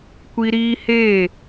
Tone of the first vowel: high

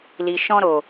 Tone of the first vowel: low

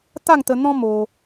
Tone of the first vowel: falling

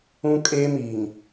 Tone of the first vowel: high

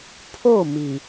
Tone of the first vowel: falling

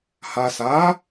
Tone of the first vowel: low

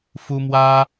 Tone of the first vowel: high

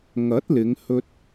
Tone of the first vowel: rising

